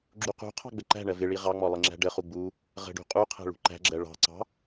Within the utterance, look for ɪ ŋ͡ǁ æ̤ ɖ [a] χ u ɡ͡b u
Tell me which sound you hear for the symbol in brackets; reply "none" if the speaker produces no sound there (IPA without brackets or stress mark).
ə